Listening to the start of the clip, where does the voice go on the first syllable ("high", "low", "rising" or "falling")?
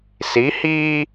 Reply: rising